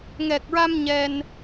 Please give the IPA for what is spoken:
ŋ ɛ˨˩ k̚ ɹ a˧ m ɲ ɛ˧ n

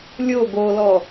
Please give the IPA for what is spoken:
lʲ o ɡ o l ɔ

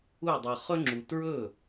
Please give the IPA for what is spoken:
u˥˩ dˤ ɤ˧ χ ɵ˥ ŋ͡ǁ u˧ t ɹ ɵ˥˩

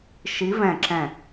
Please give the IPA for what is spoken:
ʃ i˨˦ v ɛ̃˧˩ ǁ ɛ̃˧˩

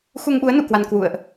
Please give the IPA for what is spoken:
x u˧ ŋ ɓ u˨˦ ə̯ n ṵ˧˨ k w a˧ n k w ṵ˧˨ ə̯ ʔ

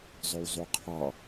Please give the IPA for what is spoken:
zˤ ø w zˤ u qʰ ɑ

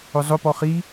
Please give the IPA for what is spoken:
ʊ zˤ ʊ p ɔ χ i

